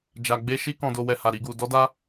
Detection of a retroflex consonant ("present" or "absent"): absent